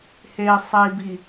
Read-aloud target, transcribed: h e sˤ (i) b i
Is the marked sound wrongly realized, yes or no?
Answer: no